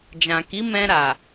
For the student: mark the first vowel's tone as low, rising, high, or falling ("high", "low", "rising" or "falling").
low